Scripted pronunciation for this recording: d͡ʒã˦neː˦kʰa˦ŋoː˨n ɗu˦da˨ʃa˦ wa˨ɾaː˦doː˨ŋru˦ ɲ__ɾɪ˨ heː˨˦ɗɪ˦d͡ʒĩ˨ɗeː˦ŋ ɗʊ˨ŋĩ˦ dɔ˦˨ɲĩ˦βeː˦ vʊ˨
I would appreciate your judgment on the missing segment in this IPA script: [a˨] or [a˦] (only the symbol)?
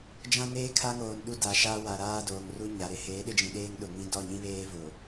a˨